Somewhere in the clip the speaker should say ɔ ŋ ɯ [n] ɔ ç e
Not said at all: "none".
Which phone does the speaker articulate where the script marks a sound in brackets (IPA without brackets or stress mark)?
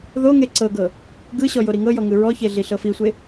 ɹ